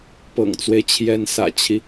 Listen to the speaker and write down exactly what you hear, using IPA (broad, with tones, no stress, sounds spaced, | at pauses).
p ɤ̰˨˩ ŋ t͡s w e˦ ɪ̯ t͡ɕʰ j ɛ˧˥ n s ä̰˨˩ t͡ɕʰ i˦